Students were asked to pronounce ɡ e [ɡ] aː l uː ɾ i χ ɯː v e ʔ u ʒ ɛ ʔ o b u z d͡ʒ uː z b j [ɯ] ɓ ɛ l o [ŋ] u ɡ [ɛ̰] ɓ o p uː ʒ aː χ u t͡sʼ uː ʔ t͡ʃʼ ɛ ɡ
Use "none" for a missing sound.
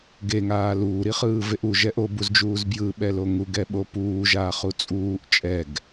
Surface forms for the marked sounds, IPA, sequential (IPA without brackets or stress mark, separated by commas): ŋ, ɯ, ŋ, ɛ